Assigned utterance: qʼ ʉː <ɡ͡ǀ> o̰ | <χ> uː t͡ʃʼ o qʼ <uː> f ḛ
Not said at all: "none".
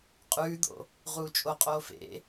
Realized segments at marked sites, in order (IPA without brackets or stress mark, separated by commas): d̪, ʁ, oː